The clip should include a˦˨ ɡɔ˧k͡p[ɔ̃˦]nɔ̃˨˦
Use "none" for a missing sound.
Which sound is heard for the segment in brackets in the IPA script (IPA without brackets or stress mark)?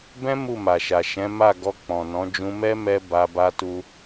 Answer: ɔ̃˨